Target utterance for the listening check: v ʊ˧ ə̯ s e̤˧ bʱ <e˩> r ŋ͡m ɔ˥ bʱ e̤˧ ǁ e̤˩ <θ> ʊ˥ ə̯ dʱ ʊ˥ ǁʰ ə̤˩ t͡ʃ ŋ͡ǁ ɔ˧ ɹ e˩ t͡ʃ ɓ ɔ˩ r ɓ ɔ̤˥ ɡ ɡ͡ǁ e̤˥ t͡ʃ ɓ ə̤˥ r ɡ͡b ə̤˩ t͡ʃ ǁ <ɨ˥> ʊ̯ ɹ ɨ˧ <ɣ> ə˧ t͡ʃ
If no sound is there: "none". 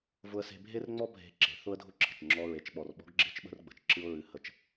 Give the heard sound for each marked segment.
e˥, θ, ɨ˥, h

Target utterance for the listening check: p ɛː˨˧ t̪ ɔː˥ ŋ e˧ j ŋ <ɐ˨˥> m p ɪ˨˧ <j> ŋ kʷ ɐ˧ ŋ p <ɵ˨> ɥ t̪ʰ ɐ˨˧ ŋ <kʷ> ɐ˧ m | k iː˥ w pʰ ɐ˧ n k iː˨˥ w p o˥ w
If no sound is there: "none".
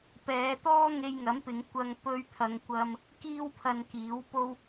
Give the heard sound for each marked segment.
ɐ˨˥, none, ɵ˧, kʷ

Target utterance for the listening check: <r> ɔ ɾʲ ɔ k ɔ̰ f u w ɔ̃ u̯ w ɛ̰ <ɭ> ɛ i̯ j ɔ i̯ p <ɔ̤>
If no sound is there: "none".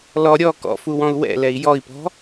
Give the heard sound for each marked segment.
l, l, ɔ̤

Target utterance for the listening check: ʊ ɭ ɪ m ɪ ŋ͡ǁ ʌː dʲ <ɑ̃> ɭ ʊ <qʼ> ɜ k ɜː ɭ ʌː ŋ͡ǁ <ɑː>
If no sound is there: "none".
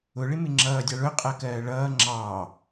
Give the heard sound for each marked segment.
ɑ, qʼ, ɑː

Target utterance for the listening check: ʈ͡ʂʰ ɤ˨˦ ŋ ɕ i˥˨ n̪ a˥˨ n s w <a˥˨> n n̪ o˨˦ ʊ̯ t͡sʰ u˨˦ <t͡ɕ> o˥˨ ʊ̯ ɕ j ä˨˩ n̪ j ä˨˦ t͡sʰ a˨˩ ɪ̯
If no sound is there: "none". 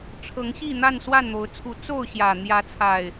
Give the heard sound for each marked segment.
a˥˨, t͡s

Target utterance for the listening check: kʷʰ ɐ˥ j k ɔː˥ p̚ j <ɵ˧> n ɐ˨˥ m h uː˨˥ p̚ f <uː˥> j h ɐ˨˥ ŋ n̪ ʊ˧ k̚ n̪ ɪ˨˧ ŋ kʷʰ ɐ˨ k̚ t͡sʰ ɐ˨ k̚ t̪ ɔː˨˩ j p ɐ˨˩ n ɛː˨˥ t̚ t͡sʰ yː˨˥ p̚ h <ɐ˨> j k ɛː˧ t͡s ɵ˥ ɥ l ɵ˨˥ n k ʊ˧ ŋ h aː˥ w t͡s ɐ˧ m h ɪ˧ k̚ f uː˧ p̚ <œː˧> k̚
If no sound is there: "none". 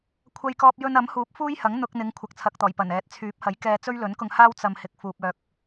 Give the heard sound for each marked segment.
ɵ˧, uː˥, ɐ˨˥, œː˧

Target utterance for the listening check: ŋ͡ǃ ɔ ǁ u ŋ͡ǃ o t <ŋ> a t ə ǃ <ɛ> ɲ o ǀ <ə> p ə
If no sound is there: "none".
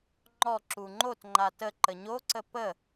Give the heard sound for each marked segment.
ŋ͡ǃ, ə, ə

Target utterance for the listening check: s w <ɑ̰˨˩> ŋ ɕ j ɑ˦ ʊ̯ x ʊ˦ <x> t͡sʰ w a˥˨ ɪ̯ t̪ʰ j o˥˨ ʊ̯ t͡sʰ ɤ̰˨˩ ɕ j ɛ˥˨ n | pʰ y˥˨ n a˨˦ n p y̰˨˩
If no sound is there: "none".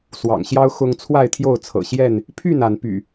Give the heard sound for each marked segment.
ɑ̰˨˩, ŋ

